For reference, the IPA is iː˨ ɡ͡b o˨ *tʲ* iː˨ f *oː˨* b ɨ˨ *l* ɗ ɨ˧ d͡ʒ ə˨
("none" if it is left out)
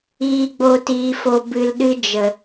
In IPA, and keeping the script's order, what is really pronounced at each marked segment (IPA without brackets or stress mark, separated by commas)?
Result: t, o˨, l